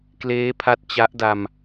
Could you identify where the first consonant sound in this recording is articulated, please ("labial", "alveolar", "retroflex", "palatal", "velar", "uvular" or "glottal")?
velar